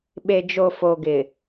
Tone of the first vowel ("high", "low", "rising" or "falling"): low